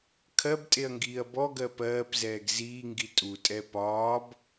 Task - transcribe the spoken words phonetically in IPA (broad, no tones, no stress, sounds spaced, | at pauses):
kʰ ɜ b tʼ e ɐ̯ ŋ ɡ iː ɐ̯ b ɔ ɡ ɜ p ɜː p z ɛː ɡ z iː ŋ ɡ i tʼ u tʼ ɛ p ɒː b